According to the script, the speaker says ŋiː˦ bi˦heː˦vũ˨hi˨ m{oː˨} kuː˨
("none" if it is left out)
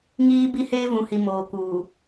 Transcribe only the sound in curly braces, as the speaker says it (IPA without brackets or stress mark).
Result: oː˨